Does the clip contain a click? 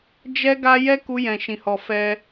no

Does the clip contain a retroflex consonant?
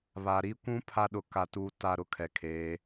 no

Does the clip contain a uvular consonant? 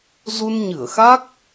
no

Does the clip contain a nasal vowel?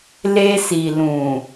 yes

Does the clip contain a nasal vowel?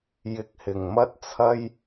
no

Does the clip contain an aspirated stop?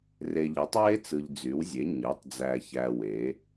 no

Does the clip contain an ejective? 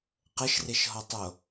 no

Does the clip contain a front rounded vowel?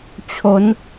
no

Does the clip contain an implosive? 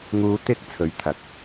no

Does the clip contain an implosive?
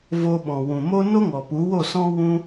yes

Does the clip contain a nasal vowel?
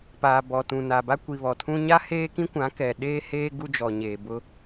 yes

